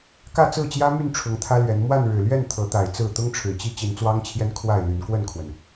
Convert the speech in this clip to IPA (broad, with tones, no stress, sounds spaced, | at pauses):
k ä˥˨ t͡s ɹ̩˥˨ t͡ɕ j ä˦ m y˥˨ n ʈ͡ʂʰ ʊ˨˦ ŋ t̪ʰ ä˦ l ɥ ɛ˨˦ n m w a˥˨ n ɻ ɻ̩˨˩ l ɥ ɛ˥˨ n t̪ʰ ɤ˨˦ t̪ a˨˩ ɪ̯ t͡s ɹ̩˥˨ t̪ ʊ˦ ŋ ʈ͡ʂʰ ɻ̩˨˩ t͡ɕ i˦ t͡ɕ i˨˦ n t͡s w ɑ˦ ŋ t͡ɕʰ j ɛ˦ n kʰ w a˥˨ ɪ̯ l y˨˦ n k w ə˥˨ n kʰ w ə˩ n